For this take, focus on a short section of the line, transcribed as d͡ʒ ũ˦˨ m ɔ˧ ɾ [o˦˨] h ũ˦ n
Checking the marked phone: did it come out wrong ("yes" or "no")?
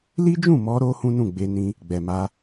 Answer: yes